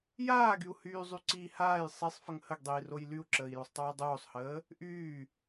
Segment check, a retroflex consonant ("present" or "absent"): absent